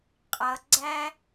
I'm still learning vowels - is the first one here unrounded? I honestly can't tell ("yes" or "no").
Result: yes